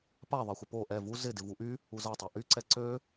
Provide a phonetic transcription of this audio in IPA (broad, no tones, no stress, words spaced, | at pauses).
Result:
paðˤexʷɪ po ʔɛ vu zɪ dɪvuʔy | uzatˤa ʔyǀɛ ǀø